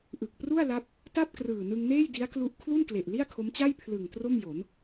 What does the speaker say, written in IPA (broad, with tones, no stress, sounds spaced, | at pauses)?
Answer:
ʔ ɯ˨˩ k̚ p r u˥˩ a̯ l a˦˥ p̚ | t a˥˩ p̚ k r ɯː˨˩ n ɯ˧ ŋ n eː˥˩ j d i˦˥ a̯ k l u˦˥ ʔ kʰ l u˥˩ n k l e˨˩ ʔ l i˥˩ a̯ kʰ o˦˥ m t͡ɕ a˥˩ j pʰ l ɯ˨˩ ŋ t r o˥˩ m j o˩˦ n